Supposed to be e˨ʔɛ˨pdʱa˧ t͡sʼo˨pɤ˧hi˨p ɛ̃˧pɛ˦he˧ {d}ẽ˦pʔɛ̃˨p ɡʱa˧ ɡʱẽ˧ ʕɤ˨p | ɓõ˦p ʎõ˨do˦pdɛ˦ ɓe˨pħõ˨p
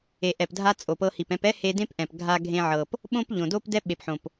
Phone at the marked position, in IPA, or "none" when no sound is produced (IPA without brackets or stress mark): d